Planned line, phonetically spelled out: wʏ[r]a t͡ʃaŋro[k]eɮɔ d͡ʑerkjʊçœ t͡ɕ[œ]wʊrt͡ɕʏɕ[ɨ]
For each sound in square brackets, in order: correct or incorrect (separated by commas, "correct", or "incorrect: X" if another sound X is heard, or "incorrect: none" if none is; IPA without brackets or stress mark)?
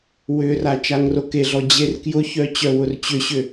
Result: correct, correct, correct, incorrect: ʏ